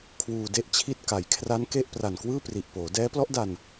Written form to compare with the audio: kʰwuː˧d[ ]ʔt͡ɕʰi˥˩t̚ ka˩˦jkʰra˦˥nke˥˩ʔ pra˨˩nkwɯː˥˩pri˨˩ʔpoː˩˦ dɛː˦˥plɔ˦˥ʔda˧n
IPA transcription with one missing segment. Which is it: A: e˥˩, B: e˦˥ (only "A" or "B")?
A